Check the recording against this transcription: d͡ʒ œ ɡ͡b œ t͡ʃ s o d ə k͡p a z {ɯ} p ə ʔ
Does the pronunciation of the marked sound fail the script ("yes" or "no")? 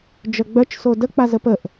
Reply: yes